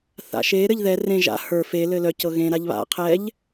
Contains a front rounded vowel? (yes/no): yes